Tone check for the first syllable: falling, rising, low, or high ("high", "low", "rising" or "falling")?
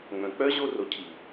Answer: low